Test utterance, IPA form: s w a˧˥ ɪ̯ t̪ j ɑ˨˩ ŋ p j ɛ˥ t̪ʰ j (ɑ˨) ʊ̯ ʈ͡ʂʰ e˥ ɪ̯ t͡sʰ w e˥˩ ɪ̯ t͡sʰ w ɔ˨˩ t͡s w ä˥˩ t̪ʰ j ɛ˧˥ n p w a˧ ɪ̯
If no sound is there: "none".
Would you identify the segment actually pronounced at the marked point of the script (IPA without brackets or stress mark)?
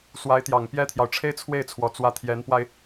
ɑ˨